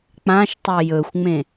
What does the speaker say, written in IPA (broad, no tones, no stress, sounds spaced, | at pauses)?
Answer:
k͡p ã ʃ tˤ ɵ j ɵ xʷ ŋ͡m ẽ